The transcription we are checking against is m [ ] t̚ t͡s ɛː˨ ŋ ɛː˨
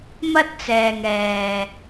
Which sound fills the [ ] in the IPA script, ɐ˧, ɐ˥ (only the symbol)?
ɐ˥